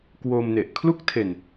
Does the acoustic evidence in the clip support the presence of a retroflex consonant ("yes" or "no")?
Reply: no